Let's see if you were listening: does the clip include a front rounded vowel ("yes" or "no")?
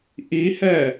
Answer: no